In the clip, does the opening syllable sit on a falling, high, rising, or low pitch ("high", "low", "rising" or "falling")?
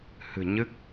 low